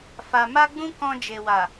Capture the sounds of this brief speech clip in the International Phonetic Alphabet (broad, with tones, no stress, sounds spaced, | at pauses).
f a˨ m a˧ ɡ͡b ũ˦ k ɔ̃˧ d͡ʒ e˨ w a˨